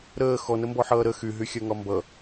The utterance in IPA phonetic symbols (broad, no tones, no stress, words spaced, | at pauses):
ɾəː xɔnəmbɔħʌː ɾə xyɦyxʲɜŋɒ mbʌ